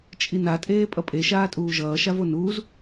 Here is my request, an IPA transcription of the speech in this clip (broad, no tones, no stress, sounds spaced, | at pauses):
t͡ʃʼ i n a tʼ eː pʼ ʌ pʼ e ʃ aː tʼ uː ʒ ʌː ʃ a v o n uː z